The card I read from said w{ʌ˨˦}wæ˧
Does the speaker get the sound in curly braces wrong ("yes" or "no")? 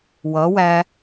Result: no